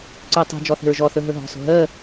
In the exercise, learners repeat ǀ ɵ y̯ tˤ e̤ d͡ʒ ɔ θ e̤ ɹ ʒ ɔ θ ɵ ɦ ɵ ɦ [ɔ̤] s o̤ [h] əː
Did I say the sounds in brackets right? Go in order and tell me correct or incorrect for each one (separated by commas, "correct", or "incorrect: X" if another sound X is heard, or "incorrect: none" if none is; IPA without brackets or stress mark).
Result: correct, incorrect: ɦ